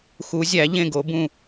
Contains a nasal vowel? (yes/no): yes